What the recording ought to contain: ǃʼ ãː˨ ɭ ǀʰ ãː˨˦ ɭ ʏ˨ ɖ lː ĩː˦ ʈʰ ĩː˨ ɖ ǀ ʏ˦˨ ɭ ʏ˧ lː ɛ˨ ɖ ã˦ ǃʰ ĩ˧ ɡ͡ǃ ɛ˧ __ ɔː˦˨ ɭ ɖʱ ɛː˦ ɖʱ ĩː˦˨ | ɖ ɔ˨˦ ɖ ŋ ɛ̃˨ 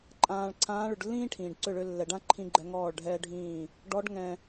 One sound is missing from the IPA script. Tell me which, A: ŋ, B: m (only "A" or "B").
A